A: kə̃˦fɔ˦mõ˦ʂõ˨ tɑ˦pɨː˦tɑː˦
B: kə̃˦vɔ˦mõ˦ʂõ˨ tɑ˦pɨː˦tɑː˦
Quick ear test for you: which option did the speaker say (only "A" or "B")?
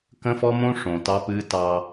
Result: A